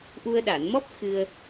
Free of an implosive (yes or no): no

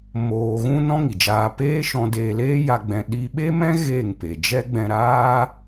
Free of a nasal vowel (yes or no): no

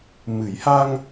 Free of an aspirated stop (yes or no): yes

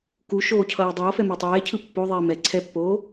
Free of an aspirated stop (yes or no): no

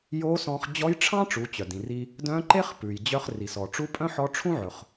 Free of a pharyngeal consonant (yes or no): no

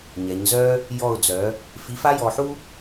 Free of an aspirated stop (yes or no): yes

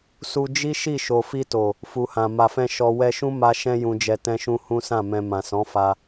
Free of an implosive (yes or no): yes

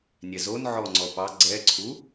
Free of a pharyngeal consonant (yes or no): no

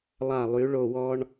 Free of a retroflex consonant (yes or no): no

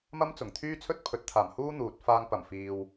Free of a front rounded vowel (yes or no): no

